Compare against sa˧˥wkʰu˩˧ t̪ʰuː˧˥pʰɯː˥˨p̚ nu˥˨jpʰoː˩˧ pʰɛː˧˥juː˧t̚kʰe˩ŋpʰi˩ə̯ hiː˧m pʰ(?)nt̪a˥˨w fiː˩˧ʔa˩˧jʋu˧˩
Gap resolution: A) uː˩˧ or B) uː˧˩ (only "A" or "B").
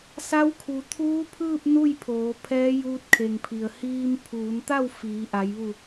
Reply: A